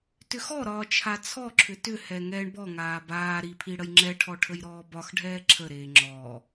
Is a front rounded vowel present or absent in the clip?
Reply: present